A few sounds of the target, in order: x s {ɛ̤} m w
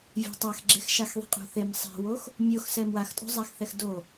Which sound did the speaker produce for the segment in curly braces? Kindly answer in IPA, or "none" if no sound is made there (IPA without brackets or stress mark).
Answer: ɛ